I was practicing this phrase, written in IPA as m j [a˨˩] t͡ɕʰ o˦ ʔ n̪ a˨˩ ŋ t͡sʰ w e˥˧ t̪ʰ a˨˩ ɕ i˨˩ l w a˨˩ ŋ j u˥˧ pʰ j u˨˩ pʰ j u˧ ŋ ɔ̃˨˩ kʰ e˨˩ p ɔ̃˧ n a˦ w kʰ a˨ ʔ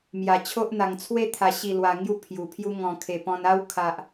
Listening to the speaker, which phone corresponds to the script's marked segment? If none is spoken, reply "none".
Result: a˨˩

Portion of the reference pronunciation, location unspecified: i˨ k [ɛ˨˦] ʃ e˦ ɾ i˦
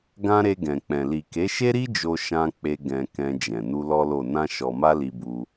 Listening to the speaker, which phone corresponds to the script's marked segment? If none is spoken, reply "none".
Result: e˨˦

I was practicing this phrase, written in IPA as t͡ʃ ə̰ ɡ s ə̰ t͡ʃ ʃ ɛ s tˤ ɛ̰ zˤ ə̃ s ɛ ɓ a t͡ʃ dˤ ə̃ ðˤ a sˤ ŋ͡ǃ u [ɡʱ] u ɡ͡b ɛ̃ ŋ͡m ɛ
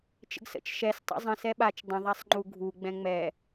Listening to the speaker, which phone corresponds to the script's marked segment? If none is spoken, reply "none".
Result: ɡʱ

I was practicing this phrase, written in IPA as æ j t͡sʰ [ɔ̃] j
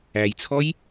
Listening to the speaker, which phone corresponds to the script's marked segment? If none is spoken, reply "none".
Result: ɔ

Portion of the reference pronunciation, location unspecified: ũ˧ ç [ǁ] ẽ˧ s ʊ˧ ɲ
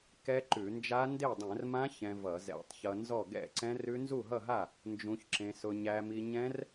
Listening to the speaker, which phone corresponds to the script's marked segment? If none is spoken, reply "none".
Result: ǁ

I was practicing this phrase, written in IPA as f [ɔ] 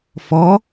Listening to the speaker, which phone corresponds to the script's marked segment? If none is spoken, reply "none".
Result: ɔ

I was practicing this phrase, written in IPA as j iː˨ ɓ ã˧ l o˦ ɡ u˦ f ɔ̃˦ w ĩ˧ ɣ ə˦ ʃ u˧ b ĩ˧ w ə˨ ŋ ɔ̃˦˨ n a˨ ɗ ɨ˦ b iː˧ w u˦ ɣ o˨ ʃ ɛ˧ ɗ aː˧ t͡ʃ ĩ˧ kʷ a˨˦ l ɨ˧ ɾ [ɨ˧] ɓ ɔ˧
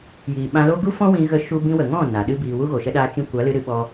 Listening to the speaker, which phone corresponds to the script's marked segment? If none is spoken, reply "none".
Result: ɨ˧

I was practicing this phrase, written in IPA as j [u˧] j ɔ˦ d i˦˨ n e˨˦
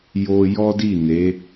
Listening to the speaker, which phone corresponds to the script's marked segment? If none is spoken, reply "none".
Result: o˧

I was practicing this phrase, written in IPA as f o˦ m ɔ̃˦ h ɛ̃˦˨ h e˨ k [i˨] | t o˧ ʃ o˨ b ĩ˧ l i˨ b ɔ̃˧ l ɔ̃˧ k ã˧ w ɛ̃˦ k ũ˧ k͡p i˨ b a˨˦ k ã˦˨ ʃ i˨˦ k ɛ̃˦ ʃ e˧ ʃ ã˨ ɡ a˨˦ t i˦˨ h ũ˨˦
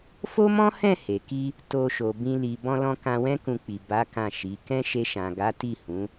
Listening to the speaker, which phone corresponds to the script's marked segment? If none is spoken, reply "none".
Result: i˧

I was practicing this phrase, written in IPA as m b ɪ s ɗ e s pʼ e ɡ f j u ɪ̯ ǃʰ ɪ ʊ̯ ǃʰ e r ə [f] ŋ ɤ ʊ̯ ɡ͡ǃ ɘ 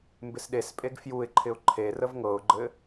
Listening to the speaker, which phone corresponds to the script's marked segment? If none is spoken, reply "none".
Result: v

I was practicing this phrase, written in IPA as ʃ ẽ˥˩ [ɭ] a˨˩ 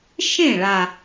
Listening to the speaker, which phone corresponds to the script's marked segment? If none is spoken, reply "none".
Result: ɭ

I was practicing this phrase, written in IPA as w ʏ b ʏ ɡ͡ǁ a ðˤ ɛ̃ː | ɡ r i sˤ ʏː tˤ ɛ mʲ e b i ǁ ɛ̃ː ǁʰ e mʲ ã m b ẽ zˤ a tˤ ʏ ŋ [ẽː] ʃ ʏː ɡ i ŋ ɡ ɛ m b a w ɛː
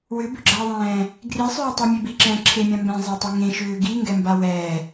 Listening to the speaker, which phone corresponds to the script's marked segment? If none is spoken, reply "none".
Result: ẽ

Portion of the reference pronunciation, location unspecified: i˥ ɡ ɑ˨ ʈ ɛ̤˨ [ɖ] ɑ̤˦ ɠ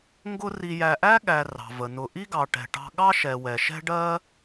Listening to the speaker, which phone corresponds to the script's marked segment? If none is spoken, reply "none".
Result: ʈ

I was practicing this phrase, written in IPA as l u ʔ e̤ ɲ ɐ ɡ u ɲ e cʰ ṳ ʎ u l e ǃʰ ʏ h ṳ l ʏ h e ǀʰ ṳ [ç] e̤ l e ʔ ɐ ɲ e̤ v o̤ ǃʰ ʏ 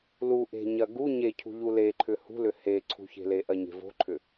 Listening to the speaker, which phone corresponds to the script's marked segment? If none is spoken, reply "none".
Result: ç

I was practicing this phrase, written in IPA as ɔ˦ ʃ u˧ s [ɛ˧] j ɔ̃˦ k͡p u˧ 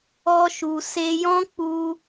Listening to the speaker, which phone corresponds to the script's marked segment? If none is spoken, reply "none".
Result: e˧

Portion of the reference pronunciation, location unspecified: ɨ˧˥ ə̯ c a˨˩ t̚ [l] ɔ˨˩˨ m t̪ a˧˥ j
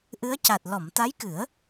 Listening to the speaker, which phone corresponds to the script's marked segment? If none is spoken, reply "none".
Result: l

